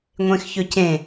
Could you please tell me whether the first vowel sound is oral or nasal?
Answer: nasal